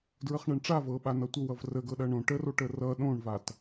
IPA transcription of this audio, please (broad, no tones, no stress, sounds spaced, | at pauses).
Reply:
d ɹ ə χ ɳ ɐ ɳ ʈ͡ʂ a v ɤ ɓ a n ʌ tʷ ə w ʌ v r ə ɡ ɤ ɗ ɐ ɳ õ ʈ ə r o ʈ ə r ʌ ɗ õ ɳ v a t